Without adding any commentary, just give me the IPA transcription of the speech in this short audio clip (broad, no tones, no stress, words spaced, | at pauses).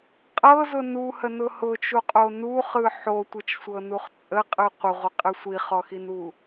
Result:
qʼɤzʊ nuhənʊ hʊt͡ʃuqʼo nuχɯ ħotʷɯt͡ʃsʷɤnuχ t͡sʼəqʼɯ qʷəʁʷəqʼɯ sʷiχɔxinu